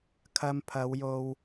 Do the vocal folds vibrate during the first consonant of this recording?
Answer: no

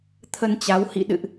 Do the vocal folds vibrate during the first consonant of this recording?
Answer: no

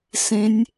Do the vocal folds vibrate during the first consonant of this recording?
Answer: no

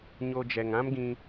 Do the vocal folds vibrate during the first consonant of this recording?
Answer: yes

